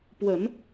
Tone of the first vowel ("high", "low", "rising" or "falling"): low